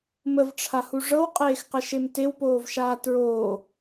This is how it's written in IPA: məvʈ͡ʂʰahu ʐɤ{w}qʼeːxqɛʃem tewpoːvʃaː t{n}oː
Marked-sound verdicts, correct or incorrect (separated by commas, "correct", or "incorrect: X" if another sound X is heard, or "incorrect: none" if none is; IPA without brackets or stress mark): correct, incorrect: ɹ